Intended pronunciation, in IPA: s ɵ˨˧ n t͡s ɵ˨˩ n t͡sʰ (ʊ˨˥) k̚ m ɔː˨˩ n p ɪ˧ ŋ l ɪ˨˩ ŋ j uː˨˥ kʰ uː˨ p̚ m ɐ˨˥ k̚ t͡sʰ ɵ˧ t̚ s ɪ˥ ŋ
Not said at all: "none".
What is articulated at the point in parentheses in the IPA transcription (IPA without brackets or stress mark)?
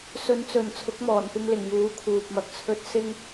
ʊ˨˥